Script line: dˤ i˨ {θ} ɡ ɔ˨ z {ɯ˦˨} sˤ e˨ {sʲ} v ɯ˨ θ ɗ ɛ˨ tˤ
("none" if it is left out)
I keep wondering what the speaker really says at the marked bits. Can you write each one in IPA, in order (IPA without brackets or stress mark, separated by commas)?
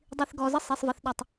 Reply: θ, ɯ˦, sˤ